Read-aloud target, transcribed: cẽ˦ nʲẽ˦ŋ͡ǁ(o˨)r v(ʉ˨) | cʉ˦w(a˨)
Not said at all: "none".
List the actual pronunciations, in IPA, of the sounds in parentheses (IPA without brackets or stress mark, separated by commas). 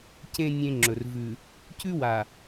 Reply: ɵ˨, ʉ˨, a˨